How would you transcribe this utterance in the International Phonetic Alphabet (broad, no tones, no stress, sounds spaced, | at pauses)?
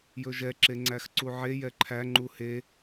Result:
j ɵ ʒ ɛ ǁ e ŋ͡ǀ æ x ǀ u ʕ e j ɛ ǃʰ æ ŋ͡ǃ u h e